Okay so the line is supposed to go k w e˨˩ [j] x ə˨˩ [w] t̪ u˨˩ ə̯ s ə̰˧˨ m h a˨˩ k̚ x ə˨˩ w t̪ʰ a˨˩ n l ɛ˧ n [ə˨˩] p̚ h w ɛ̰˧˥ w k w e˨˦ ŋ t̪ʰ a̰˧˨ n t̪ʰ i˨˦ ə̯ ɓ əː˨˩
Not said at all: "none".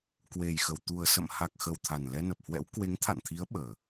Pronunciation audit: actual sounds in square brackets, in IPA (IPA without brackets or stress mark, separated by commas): j, w, ə˨˩